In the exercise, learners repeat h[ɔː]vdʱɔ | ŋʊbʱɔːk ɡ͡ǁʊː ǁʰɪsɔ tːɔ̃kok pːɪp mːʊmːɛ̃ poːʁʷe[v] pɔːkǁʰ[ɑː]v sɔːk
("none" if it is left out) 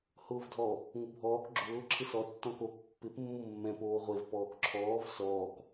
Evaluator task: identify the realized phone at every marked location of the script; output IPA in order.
ʊː, v, ɔː

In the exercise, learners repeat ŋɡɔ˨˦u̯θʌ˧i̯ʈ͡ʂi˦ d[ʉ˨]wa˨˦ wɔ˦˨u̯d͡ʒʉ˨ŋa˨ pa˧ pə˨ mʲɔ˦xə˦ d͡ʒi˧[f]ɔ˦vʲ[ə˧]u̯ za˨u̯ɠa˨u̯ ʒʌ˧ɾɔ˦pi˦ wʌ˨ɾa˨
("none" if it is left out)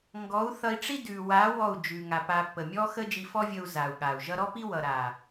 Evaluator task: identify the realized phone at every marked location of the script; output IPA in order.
ʉ˨, f, ə˧

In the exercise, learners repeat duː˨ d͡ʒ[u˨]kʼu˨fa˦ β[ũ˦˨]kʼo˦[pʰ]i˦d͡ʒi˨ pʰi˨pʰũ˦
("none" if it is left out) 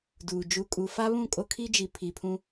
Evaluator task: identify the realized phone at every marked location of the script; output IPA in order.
u˨, ũ˦˨, kʰ

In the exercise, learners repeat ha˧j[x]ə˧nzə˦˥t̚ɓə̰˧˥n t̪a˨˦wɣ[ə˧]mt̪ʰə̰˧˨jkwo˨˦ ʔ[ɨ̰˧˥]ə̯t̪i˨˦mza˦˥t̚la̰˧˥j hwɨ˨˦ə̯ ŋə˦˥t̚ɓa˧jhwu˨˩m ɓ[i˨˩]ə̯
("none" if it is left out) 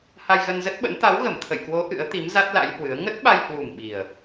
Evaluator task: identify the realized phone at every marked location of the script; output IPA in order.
ɣ, ə˧˩, ɨ̰˧˥, i˨˩

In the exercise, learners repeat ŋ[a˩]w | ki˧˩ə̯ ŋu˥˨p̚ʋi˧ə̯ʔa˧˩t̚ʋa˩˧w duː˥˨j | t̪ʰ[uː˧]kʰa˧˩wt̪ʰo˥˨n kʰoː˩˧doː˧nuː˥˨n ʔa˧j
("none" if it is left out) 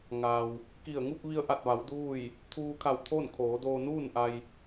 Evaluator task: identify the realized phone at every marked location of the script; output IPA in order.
a˩, uː˧

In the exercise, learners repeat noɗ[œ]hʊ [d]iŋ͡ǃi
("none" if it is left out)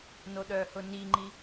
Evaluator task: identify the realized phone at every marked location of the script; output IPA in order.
œ, n

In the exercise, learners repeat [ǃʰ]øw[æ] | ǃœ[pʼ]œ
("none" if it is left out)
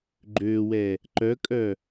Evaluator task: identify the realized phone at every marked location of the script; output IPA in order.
ɡ͡ǃ, ɛ, kʼ

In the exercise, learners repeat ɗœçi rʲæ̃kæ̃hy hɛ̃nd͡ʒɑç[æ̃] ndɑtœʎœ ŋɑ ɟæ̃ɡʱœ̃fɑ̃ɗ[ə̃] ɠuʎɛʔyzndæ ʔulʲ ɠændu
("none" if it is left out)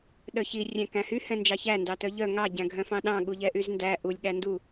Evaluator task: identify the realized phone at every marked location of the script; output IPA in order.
æ, ɑ̃

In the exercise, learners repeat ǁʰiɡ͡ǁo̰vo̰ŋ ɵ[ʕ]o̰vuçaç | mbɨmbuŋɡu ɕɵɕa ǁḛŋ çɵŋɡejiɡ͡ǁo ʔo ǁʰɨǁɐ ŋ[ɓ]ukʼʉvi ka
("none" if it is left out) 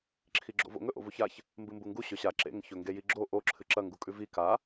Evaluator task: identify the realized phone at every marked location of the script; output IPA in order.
ʔ, ɡ

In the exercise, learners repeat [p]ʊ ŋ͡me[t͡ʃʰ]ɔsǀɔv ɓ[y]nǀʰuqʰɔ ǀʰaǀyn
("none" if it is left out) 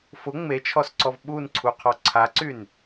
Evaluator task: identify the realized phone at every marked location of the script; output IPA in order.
f, t͡ʃʰ, u

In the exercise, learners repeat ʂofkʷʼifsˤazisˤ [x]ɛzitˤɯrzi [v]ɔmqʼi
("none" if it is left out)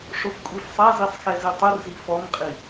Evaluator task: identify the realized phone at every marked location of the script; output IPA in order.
x, f

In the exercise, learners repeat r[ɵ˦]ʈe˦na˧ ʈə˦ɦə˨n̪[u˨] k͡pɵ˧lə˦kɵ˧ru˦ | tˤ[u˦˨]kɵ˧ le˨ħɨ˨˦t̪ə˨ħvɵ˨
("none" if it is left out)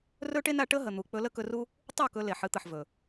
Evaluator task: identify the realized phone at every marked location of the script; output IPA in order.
ɵ˦, u˨, u˦˨

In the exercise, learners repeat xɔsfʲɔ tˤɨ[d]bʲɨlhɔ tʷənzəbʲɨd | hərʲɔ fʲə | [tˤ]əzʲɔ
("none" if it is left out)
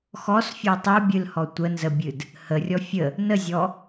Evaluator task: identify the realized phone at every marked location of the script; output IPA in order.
none, n

